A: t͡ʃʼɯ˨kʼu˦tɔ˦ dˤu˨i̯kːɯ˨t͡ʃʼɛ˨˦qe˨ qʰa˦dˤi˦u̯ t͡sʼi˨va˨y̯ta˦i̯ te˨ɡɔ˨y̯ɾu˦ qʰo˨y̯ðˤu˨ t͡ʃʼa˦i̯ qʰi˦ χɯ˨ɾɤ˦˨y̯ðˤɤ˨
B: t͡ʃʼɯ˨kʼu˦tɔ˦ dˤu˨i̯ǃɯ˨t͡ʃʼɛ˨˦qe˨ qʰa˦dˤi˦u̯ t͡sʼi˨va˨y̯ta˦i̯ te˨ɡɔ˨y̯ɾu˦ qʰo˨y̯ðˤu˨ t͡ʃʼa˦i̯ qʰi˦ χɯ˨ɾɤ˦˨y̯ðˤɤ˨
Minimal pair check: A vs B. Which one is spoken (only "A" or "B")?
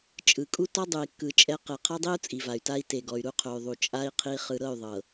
A